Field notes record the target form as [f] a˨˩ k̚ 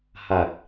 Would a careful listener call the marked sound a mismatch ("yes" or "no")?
yes